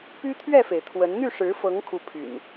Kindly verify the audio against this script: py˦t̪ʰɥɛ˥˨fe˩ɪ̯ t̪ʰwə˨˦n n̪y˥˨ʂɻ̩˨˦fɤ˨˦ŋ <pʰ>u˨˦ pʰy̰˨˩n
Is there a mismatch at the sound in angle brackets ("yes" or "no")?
yes